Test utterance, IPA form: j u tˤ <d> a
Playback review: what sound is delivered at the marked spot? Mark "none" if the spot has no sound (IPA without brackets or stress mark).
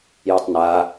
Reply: n